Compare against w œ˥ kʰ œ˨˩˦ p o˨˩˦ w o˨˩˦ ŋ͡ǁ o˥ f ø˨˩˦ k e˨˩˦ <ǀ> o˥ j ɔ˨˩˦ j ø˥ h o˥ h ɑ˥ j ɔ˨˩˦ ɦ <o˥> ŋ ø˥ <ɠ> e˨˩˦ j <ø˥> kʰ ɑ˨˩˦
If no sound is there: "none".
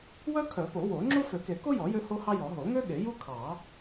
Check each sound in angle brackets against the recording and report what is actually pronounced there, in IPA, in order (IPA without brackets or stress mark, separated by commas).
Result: k, o˨˩˦, ɠ, u˥